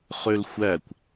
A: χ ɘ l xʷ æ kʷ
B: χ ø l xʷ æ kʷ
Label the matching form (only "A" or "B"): B